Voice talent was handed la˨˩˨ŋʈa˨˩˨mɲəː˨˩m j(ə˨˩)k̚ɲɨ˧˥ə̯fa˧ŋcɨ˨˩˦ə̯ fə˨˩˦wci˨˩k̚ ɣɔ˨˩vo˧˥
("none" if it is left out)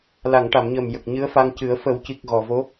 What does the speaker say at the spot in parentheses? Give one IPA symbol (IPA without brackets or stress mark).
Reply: ə˨˩